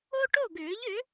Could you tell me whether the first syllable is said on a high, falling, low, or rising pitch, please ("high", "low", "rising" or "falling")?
high